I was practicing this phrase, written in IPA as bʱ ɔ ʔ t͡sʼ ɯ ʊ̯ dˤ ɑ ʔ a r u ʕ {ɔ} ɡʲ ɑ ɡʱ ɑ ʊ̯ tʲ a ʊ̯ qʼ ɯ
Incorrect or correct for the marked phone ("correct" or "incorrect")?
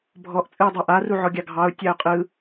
correct